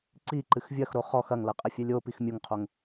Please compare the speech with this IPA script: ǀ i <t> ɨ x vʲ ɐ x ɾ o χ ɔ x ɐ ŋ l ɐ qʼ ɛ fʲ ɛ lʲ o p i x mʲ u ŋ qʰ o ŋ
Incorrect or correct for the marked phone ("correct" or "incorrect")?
incorrect